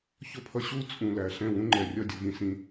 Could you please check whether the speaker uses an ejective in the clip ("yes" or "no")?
yes